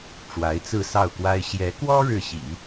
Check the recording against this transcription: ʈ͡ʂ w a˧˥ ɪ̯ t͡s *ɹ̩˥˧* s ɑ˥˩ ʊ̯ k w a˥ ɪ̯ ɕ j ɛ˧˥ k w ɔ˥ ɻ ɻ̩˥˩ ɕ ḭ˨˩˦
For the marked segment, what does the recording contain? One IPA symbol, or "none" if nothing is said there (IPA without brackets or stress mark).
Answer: ɹ̩˥˧